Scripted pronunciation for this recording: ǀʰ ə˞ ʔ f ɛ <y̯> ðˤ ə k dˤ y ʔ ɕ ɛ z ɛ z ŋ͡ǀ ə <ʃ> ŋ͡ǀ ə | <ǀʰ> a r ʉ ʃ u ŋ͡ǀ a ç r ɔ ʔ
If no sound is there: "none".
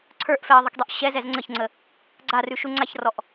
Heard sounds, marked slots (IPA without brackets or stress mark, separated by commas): i̯, ç, ɡ͡ǀ